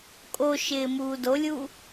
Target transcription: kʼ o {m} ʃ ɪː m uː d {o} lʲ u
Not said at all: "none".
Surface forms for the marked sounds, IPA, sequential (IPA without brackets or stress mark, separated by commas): none, o